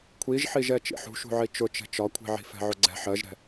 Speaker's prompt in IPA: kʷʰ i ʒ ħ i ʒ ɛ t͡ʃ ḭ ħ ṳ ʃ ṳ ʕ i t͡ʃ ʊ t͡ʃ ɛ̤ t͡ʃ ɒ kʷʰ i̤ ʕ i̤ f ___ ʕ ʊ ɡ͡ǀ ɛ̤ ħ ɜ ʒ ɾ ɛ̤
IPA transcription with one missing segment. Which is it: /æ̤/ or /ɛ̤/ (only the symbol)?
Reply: ɛ̤